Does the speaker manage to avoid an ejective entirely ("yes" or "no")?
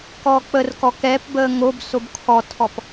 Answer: yes